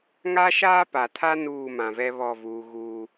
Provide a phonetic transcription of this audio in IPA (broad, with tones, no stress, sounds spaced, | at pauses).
ŋ a˦ ʃ aː˦ p a˨ tʰ a˦ n uː˦˨ m ã˨ v ɛ˦ β ɔ˦˨ v uː˨ ɣ uː˦